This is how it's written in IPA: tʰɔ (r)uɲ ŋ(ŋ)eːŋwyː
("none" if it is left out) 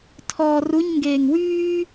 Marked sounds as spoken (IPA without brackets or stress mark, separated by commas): r, ɡ